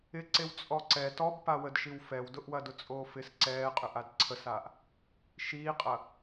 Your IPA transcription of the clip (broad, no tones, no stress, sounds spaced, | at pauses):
ɪ ǀ e w t͡sʼ ɔ ǀ ɛ t ɔ b p a w ə d ʃ i w f ɛ w d ʊ ʔ w ɐ d ʊ t͡sʼ oː f ɪ s ǀ ɛː qʼ ʏ ʔ a d ǀʰ ə s aː ʔ | ʃ iː qʼ ɐ